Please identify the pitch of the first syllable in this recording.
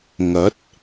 rising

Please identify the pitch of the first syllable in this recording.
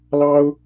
high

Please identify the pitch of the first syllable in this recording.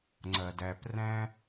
low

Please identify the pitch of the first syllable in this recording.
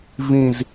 falling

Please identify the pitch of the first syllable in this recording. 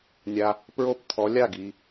low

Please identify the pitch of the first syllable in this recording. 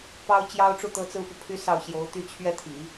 high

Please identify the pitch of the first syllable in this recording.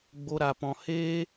high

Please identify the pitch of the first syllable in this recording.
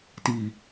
low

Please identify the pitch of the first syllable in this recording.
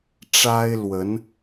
high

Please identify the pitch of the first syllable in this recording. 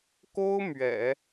high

